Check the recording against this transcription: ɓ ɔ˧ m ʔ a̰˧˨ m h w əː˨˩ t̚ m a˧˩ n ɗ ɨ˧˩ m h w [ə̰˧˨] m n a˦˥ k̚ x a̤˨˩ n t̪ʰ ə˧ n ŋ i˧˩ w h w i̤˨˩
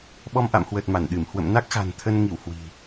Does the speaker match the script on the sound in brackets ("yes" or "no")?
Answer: yes